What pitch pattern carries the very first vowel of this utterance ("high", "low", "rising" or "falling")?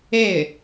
falling